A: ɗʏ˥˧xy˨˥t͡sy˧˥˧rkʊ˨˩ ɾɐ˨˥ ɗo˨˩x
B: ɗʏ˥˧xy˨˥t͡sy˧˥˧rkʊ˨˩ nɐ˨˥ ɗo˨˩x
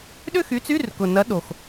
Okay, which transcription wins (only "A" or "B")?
B